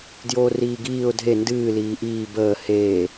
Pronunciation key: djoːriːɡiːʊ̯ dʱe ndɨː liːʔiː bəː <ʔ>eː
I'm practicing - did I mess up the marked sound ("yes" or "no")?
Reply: yes